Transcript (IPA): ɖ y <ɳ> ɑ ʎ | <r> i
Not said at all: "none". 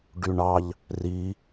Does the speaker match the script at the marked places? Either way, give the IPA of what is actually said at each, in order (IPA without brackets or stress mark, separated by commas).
ɳ, r